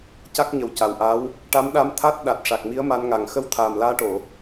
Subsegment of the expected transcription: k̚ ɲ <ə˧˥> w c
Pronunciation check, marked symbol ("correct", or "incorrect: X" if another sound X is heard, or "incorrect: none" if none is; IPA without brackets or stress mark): incorrect: ə˨˩